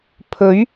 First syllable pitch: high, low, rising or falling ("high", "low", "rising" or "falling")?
rising